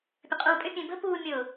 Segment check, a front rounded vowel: present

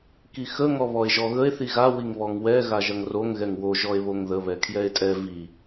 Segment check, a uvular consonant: absent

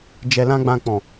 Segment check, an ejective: absent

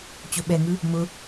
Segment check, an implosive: present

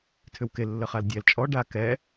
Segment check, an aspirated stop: present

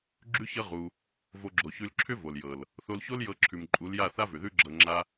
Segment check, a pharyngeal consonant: absent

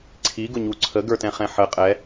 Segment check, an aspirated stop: present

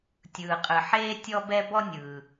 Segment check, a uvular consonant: present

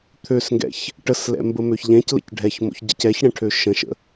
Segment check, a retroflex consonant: present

